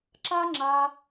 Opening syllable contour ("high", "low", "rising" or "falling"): high